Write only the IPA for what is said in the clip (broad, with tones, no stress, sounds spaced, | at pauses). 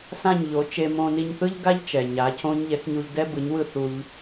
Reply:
s ã˥˩ ɲ ʎ o˩˥ t͡ʃ e˧ m õ˧ n i˧ ɲ θ ɯ˥ ʎ ɡ a˥ ʎ t͡ʃ ɛ˩ ɲ a˩˥ cʰ õ˥ ɲ ʎ ɛ˩˥ k ɲ u˧ ʎ d ɛ˥ b ɯ˩˥ ɲ w ɯ˥˩ θ u˧ ʎ